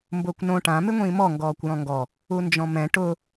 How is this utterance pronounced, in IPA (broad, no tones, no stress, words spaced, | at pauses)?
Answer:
mbʊːkʷnõ ʈã mɪŋʷĩːmɔ ŋɡɔːkʷjɔ̃ŋɡɔ | und͡ʒɔ̃mɛ̃ ʈʊ